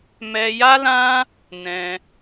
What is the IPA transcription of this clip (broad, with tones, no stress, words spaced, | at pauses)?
mɛ˧ja˦lã˦ | nɛ̃˧